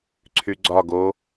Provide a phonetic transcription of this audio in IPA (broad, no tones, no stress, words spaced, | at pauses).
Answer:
ǀʰyɡ͡ǀɒ ɡo